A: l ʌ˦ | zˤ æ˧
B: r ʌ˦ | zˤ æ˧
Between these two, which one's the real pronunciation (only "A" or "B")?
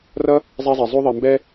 B